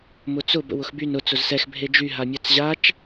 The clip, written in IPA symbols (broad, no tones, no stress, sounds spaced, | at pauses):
m ʊ t͡s ʊ b ə̰ w ʊ x b y n ʊ t͡s ʊ z s ɛ x bʱ e d͡ʒ y ɦ a mʲ a t͡s ʑ a t͡ʃ